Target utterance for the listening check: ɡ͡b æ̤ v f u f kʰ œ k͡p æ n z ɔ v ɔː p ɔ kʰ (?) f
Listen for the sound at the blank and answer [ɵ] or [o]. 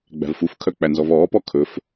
ɵ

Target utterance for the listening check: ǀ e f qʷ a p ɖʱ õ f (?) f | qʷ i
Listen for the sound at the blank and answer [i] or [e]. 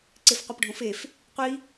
e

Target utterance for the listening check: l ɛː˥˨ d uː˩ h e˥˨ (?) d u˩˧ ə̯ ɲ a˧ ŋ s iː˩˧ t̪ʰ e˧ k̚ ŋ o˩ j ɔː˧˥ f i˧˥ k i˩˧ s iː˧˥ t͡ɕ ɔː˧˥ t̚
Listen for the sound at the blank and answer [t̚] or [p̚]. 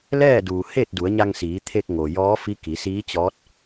t̚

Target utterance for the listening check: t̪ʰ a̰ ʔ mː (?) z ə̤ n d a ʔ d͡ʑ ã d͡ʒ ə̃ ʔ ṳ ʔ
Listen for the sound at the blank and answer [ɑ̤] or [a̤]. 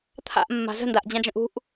a̤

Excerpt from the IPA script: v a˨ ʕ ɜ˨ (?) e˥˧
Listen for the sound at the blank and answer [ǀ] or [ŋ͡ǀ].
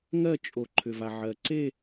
ǀ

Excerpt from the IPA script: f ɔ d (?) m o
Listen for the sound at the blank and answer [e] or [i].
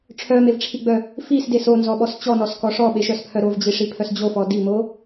i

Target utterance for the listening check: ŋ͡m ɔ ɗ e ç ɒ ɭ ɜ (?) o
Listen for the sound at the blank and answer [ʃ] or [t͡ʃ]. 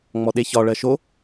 ʃ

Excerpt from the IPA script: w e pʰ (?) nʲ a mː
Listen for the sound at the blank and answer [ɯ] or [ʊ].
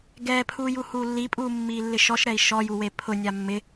ʊ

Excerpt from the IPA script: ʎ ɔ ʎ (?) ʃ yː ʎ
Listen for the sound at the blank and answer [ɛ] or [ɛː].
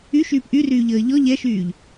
ɛ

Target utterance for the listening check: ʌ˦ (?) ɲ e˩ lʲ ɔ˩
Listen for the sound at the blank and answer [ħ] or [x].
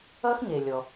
x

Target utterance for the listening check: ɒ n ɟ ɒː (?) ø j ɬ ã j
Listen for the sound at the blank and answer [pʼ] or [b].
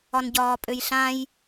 pʼ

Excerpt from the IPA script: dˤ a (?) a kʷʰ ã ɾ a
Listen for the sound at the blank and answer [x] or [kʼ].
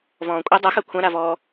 x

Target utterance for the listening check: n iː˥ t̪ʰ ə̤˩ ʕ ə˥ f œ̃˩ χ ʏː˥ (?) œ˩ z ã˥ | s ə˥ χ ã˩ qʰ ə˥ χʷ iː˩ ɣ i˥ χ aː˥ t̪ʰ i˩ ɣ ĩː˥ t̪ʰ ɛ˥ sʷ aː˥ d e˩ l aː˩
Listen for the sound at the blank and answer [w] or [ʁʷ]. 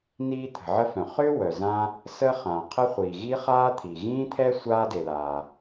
w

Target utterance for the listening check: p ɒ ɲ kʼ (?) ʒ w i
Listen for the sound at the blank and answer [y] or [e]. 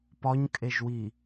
e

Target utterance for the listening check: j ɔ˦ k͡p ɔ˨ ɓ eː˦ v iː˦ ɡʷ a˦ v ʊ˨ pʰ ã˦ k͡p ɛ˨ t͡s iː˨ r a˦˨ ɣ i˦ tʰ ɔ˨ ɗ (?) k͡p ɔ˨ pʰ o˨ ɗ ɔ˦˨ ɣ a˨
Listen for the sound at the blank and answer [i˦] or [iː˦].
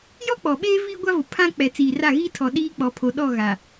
iː˦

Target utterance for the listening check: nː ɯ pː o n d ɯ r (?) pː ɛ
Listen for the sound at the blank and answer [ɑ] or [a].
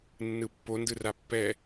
a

